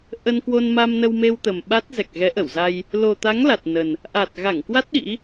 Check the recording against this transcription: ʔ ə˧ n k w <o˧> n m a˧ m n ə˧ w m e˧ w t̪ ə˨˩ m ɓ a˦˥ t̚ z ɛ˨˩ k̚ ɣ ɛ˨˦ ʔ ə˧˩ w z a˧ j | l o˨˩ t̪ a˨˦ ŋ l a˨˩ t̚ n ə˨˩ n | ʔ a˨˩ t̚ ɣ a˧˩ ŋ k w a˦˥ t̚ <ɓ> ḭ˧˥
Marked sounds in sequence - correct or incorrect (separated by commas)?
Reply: correct, incorrect